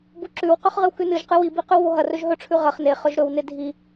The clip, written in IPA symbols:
b u ǁ ʉ w q ɵ χ ʁ ɨ w k ʉ n ɨ ʒ q ɨ w i b i q ʉ w β o ɦ ɐ r ɵ ʒ ɦ ɵ ʈ͡ʂʰ ʉ ʁ ɐ χ n e χ ɵ ʒ ɾ ɵ w n e dʱ i

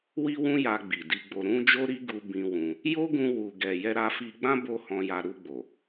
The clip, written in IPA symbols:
w i˦ w ũ˦ j a˧ ɡ͡b i˨ d i˧ ɡ͡b o˧ ɾ ũ˧ d͡ʒ o˦ ɾ i˦ ɡ u˧ b ĩ˧ w ũ˧ | j o˦ ɡ ũ˧ w u˨ ɡ ɛ˨ j ɛ˧ ɾ a˧ f i˧ ɡ͡b ã˦ b o˦ h ɔ̃˧ j a˧ ɾ u˧ ɡ͡b o˨

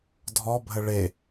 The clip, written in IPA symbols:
dʱ ɔ bʱ ə ɭ e

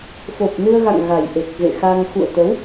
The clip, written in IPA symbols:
f o˨˩ p̚ n ɨ˧ ə̯ ɣ a̰˧˨ ŋ ɣ a˨˩ j ʔ e˨˩ k̚ v ḛ˧˨ x a˧ ŋ x ṵ˧˨ ə̯ t̪ ə˨˦ w

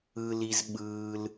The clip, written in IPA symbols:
ɯ˩ l i˩ z ɓ ɯː˩ l

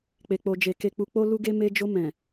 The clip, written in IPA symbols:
k͡p e˨ k͡p o˨ d͡ʒ e˨ k e˨ k͡p u˨ k͡p o˧ l u˧ ɡ e˧ m e˧ d͡ʒ o˧ m ɛ̃˨

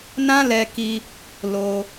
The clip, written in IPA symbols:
n ã˦ l ɛ˧ k i˧ | l o˧

